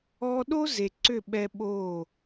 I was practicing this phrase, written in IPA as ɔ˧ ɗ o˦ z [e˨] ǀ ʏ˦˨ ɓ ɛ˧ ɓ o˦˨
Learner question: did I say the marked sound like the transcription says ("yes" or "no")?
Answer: yes